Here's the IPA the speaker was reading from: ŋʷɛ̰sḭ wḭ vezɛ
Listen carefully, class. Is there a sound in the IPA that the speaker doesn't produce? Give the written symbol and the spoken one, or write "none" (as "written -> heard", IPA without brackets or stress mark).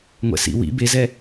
v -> b